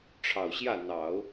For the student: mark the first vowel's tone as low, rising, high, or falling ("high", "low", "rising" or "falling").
low